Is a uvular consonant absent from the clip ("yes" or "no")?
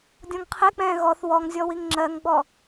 no